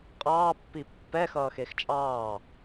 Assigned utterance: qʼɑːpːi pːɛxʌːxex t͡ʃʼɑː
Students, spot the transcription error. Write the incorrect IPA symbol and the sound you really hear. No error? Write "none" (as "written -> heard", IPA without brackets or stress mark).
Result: none